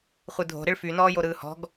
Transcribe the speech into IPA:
χʷ ɯ dʱ o̤ ɾ ɪ ɭ f y n ɔː j o ɾ ɯː h ɔ̤ ɡ

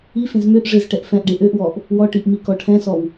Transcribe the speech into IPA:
i f ẽ z m ø ʔ ʐ e z ʈ ɛ ʔ f ɛ̃ ʔ ɖ e ʔ ø ʔ w ɔ ʔ | w ɔ ʈ i ʔ m i k ɔ ʈʰ ɛ̃ s ɔ w

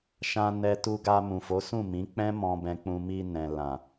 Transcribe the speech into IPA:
ʃ ã˧ n ɛ˧ t u˧ ɡ a˧ m ũ˨ f o˨˦ s ũ˦˨ m ĩ˨˦ k͡p ɛ̃˦ m ɔ̃˧ b ɛ̃˧ k͡p ũ˧ m i˧ n ɛ̃˨ l ã˨

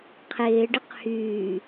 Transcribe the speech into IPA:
qʰ ɪː ɖ ɪ q h yː

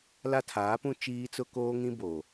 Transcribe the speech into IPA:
l a˦ tʰ aː˨˦ p ũ˦ t͡ʃ iː˦ t͡s ʊ˦ k oː˦ ŋ ĩ˦ b oː˨

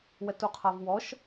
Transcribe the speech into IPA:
w ɛ t u qʰ a v w ɔ ʃ

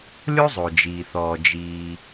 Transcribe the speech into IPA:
lʲ o˥ zˤ o˩ d͡ʒ iː˩ θ ɔː˩ d͡ʒ iː˩

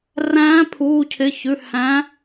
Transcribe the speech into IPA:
r æ̃ː˨˥ pʰ uː˩˧˩ cʰ ɪ˩˧˩ ç ʉ˩˧˩ h æ̃˨˥

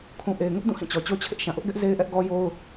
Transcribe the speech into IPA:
kʰ ũ˨ ʔ e˨ ɪ̯ ŋ ʊ˦ ʔ d ũ˦˨ h ĩ˦˨ t͡ɕ ɔ˨ t͡ɕ o˦ t͡ɕʰ ɪ˦ ʔ ʃ ã˨ ʔ ʊ˦ ʔ ɡ ɛ˦ ʔ z e˦ ɪ̯ ʔ ɛ˦ ʔ ɡ ɔ˦ j o˦ ʊ̯

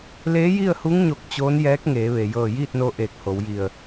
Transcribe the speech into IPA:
l eː˧˥ j i˥˨ ə̯ h u˧˥ ŋ ɲ o˧˩ k̚ t͡ɕ oː˧˥ n j ɛː˧˥ k̚ ŋ eː˩˧ ʋ e˩ j ɤː˧˩ j iː˥˨ t̚ n o˧ ʔ eː˧˩ k̚ h o˩˧ w j i˧˩ ə̯

